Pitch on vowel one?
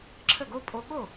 falling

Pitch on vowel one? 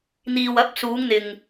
low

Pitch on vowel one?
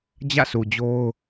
falling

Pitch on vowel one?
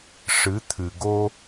rising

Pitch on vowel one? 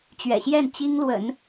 low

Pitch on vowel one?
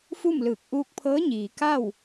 falling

